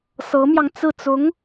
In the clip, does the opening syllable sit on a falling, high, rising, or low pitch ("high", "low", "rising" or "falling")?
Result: rising